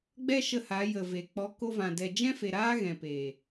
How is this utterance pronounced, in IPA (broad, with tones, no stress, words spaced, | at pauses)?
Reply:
ɡ͡bɛ˦ʃə˧ha˨˦ jə˨ve˨ k͡pɔ˨˦ko˧vã˨ dɛ˨d͡ʒɛ̃˦fe˨ ɾaː˦ɣɛ̃˨peː˨